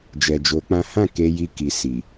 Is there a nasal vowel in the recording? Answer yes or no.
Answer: yes